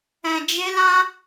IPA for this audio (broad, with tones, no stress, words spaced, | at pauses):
ɛ̃˧d͡ʒe˦lã˦